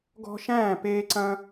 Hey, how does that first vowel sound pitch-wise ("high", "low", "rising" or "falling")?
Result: high